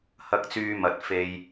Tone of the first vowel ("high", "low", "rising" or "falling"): low